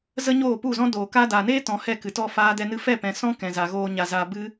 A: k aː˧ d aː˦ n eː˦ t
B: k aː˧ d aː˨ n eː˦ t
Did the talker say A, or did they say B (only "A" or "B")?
B